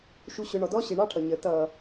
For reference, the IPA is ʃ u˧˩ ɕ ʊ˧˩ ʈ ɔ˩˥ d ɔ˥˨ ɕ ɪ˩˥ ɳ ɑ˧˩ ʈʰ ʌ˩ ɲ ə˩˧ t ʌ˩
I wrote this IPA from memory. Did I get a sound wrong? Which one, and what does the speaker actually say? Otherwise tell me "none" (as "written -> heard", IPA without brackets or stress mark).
ʈ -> ɳ